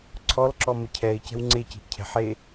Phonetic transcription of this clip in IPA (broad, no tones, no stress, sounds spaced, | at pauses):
ǀʰ ɔ l ǁ ɔ m ə cʰ ɛ ɪ̯ c ɛ̤ w ŋ͡ǀ e c i̤ ʔ cʰ ɛ̤ ħ e